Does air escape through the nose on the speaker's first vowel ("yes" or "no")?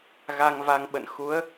no